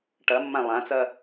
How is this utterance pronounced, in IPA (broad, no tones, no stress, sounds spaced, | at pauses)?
ʈ ɐ mː ã lˠ ã t͡s ɐ